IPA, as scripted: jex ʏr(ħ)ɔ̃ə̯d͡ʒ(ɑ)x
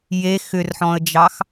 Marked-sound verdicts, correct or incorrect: correct, correct

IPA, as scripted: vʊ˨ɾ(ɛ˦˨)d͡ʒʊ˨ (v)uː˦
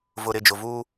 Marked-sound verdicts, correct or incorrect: incorrect: ɪ˦˨, correct

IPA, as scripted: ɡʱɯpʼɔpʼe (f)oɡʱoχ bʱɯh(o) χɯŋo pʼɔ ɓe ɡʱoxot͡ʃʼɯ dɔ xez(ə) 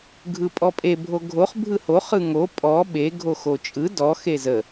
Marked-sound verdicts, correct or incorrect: incorrect: bʱ, correct, correct

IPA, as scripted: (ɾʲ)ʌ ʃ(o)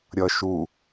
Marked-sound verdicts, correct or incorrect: correct, incorrect: u

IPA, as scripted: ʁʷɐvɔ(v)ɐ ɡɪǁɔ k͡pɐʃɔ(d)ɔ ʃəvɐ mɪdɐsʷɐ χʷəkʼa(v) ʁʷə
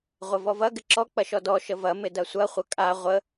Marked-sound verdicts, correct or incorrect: correct, correct, incorrect: none

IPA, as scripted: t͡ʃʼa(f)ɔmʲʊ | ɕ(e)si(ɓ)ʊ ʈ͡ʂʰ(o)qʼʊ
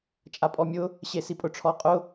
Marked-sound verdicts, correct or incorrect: incorrect: pʼ, correct, incorrect: pʼ, incorrect: ɔ

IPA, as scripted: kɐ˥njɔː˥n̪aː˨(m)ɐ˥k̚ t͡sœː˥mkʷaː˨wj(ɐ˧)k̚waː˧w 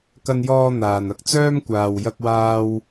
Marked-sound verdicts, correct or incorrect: incorrect: n, correct

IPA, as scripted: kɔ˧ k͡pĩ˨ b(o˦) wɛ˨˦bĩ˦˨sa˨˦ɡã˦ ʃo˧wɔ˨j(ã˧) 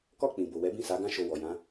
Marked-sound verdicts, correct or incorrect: incorrect: o˨, incorrect: ã˨˦

